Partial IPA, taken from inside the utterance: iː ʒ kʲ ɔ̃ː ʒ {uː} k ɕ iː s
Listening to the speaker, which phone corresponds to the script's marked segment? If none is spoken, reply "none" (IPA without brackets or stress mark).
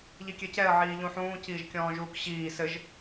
uː